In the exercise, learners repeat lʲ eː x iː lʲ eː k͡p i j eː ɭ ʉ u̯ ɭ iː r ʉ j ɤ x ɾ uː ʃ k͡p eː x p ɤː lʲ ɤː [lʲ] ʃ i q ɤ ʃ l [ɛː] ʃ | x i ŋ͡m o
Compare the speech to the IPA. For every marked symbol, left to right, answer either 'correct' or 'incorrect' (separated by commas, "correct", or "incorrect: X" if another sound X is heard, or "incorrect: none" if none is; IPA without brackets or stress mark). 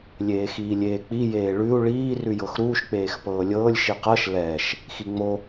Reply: correct, correct